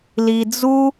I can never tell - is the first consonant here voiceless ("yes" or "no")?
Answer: no